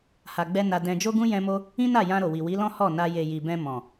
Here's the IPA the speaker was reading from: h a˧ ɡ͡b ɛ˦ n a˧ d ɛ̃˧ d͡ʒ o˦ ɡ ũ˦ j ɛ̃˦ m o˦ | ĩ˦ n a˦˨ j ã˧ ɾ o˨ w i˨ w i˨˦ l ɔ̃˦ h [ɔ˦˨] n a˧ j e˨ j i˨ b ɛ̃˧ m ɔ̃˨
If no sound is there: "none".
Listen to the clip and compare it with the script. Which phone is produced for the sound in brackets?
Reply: ɔ˦˨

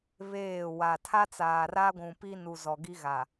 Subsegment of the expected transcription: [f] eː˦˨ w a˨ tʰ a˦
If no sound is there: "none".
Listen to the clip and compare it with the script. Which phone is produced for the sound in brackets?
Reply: β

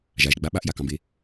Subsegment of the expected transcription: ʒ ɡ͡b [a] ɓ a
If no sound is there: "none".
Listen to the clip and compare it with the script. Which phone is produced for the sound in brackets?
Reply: a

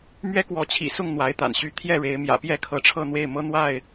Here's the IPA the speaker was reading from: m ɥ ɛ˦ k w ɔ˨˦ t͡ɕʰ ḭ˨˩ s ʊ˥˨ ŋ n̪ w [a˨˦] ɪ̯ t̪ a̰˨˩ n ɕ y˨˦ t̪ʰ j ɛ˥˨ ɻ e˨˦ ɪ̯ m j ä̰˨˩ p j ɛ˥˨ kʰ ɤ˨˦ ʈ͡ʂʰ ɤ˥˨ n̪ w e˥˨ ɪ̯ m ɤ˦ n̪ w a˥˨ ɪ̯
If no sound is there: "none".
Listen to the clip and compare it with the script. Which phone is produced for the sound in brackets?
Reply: a˨˦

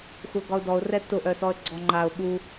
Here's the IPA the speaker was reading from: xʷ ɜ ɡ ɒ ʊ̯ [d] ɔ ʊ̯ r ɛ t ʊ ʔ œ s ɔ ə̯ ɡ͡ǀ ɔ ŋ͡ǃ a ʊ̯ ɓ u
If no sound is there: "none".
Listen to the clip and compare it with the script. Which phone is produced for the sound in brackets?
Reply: d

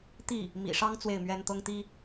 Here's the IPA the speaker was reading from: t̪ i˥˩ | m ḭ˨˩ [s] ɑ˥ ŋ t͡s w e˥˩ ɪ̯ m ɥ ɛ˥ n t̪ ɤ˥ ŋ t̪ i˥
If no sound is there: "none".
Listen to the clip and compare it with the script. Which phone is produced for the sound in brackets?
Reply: ʂ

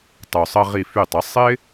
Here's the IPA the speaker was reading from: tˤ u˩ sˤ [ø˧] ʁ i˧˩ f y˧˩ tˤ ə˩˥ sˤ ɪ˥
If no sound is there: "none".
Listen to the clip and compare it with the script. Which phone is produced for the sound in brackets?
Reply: ə˧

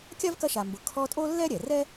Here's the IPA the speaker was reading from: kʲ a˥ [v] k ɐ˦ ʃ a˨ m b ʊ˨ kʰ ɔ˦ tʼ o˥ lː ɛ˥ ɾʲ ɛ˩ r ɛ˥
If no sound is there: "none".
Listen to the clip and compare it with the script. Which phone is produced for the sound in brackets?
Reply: v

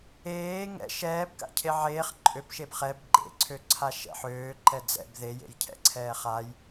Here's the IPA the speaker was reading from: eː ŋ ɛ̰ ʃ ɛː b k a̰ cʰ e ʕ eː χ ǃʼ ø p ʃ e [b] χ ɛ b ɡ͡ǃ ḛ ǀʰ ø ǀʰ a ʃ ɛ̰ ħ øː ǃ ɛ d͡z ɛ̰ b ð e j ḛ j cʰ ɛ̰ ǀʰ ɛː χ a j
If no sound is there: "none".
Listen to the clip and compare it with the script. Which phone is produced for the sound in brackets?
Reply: b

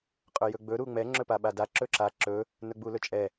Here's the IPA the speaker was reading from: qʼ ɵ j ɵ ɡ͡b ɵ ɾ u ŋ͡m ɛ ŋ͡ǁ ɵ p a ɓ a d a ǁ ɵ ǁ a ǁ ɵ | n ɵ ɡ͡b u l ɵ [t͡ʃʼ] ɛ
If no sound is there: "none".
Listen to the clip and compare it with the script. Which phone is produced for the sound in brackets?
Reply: t͡ʃʼ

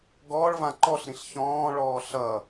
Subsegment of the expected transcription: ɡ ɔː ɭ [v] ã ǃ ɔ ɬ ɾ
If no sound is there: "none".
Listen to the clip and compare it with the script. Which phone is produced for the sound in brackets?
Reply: v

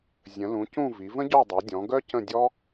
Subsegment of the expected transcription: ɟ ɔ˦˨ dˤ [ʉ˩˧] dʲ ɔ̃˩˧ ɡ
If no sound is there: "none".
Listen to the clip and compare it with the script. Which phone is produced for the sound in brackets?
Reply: ø˩˧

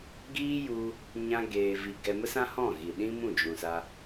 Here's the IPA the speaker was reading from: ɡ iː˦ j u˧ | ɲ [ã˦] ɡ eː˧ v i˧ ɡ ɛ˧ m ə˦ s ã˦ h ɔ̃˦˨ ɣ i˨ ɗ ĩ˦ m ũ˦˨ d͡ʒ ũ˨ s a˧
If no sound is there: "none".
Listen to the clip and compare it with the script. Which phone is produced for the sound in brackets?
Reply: ã˦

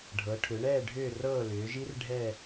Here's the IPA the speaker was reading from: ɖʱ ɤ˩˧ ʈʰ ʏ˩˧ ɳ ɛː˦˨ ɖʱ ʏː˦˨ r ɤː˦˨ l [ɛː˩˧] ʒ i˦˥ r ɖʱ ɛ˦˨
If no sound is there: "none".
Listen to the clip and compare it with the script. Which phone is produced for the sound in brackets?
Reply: ʏː˩˧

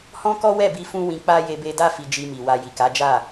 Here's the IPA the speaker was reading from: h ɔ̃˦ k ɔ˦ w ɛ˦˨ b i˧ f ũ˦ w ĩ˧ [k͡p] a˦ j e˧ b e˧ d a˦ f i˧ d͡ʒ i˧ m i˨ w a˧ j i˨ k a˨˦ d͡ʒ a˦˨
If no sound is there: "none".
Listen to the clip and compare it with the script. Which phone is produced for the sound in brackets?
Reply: k͡p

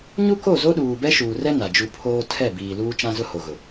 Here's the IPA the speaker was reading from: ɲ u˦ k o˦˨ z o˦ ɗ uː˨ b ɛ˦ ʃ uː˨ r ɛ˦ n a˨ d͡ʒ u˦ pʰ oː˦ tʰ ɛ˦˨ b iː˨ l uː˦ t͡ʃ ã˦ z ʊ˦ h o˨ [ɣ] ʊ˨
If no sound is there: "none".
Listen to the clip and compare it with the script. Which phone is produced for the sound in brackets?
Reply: ɣ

